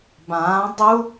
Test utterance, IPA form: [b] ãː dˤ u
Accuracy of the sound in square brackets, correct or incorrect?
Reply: correct